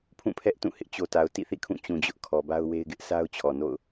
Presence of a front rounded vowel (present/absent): absent